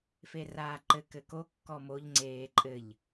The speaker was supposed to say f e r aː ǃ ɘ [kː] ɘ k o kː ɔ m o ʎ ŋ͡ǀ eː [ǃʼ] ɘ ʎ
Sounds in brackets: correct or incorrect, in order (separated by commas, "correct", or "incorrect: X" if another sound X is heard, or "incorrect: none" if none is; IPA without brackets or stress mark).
incorrect: k, correct